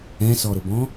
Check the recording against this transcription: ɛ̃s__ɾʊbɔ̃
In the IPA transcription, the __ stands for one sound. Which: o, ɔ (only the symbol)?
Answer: ɔ